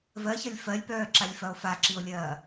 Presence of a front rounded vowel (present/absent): present